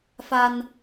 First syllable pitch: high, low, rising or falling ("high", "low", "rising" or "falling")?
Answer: high